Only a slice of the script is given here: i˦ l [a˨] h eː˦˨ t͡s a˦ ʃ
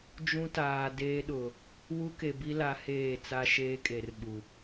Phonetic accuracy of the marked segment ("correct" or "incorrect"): incorrect